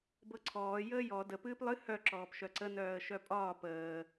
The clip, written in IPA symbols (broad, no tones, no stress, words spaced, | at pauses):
bɤǀʰɔː jəːjɔ də pɨːplˠɨ hœ ǁɔːpʃœǀə nœːə̯ʃœpʼɒː pəː